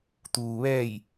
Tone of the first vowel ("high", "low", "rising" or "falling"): low